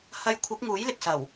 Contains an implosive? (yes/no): no